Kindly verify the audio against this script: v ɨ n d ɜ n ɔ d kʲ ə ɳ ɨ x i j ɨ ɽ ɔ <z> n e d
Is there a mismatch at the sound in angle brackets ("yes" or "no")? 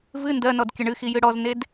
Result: no